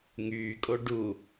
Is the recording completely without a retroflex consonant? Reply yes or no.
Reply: no